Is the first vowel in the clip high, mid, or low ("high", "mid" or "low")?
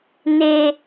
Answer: mid